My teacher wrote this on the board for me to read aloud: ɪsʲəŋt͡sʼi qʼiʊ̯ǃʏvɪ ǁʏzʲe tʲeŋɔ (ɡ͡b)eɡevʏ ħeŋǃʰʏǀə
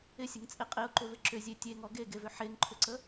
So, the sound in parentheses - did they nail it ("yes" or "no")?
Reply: no